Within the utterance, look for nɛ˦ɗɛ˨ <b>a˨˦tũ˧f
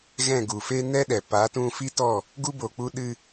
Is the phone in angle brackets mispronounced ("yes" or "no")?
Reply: yes